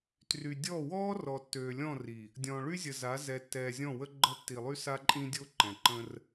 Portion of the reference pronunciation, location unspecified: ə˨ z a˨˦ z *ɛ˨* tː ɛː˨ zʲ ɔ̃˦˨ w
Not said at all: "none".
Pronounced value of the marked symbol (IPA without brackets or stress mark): ɛ˨